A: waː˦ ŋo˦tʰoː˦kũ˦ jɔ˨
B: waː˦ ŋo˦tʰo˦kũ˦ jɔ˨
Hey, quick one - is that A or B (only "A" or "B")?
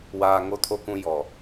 B